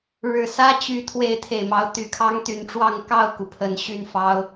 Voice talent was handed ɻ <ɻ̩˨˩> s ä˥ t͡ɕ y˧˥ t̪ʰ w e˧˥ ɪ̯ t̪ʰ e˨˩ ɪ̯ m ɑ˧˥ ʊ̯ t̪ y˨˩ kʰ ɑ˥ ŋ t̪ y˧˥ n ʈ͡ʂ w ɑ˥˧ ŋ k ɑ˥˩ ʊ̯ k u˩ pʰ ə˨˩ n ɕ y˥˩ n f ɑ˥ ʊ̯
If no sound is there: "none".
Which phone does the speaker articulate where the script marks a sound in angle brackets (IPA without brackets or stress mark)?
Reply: ɻ̩˨˩